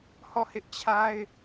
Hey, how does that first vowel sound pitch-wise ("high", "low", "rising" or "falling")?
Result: falling